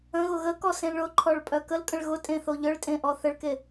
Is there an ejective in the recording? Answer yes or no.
yes